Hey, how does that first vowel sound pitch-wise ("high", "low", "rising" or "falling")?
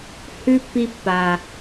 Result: high